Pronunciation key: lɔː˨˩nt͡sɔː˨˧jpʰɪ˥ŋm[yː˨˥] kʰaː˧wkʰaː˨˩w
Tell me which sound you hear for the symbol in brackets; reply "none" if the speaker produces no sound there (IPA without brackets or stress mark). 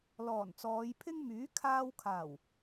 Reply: yː˨˥